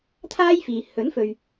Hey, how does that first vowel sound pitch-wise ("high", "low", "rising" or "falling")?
high